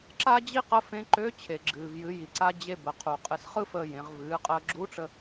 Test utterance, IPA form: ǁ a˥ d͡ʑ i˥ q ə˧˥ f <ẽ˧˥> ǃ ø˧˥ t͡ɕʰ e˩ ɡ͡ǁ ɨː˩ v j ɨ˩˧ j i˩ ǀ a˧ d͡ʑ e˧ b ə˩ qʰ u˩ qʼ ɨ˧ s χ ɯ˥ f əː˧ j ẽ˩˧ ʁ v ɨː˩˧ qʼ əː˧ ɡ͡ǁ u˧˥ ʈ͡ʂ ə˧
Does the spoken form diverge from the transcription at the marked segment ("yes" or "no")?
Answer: no